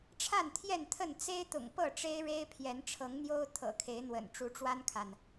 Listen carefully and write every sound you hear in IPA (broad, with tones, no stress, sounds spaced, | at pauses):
ʈ͡ʂʰ a˥˨ n t̪ʰ j ɛ˥˨ n t̪ʰ ə˥˨ n t͡s e˦ ɪ̯ t̪ ʊ̰˨˩ ŋ p ɤ˥˨ ʈ͡ʂ e˦ ɪ̯ ɻ e˦ ɪ̯ pʰ j ɛ˨˦ n ʈ͡ʂʰ ɤ˨˦ ŋ n̪ j o˦ ʊ̯ t̪ʰ ɤ̰˨˩ kʰ e˨˦ ɪ̯ n̪ w ə̰˨˩ n ʈ͡ʂ u˨˦ ʈ͡ʂ w a˦ n kʰ a˨ n